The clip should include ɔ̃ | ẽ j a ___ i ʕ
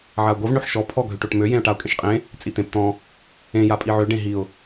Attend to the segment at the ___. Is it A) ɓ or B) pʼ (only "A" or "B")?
B